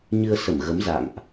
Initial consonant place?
palatal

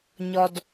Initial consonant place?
palatal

